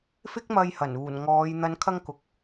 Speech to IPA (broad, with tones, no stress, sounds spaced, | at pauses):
f ɪ˥ k̚ m ɐ˧ j h ɐ˨˩ n uː˨˩ n ŋ ɔː˨˧ j n̪ ɐ˨˧ n kʰ ɐ˧ ŋ k ʊ˧ k̚